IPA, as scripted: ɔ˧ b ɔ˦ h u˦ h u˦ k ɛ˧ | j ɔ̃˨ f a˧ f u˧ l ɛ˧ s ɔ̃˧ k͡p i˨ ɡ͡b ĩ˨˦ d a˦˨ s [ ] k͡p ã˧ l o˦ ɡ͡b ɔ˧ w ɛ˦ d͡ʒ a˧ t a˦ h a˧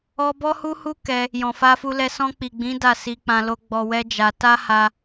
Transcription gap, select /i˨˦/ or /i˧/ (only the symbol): i˧